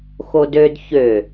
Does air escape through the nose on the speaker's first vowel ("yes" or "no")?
no